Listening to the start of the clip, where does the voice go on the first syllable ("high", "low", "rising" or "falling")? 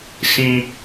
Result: high